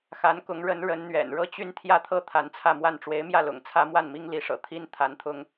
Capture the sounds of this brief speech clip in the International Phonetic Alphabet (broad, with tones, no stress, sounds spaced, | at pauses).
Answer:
x a˧˥ n k ʊ˧˥ ŋ ɻ ə˧˥ n ɻ ə˧˥ n n̪ ɥ ɛ̰˨˩ n ɻ ɤ˥˧ t͡ɕ y˥˧ n t̪ʰ j ä˥˧ t̪ʰ ɤ˥˩ t̪ʰ a˧˥ n t͡sʰ ä˥˧ m w a˥˩ n ʈ͡ʂ w e˧˥ ɪ̯ m j ä˥˩ l ʊ̰˨˩ ŋ t͡sʰ ä˥ m w a˥˩ n m i˥ ŋ l i˧˥ ʂ ɤ̰˨˩ t̪ʰ i˥ n t̪ʰ a˧˥ n t̪ʰ ʊ˥ ŋ